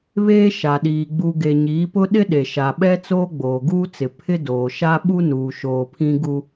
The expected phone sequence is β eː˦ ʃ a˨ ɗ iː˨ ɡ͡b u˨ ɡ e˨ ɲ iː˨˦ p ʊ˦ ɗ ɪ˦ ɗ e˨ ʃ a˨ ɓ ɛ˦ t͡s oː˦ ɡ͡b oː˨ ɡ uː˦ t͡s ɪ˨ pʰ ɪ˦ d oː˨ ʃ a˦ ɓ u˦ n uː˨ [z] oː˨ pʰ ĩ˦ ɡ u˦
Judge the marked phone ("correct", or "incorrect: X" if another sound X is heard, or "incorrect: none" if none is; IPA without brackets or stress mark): incorrect: ʃ